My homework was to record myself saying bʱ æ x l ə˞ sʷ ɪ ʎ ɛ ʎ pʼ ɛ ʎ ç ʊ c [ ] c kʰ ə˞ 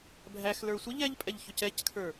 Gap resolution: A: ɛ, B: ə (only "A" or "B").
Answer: A